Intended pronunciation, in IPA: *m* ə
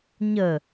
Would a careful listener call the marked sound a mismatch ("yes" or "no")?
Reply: yes